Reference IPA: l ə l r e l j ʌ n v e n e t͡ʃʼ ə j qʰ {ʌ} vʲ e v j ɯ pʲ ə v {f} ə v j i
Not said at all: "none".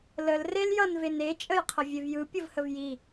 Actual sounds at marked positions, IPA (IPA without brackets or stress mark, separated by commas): ə, h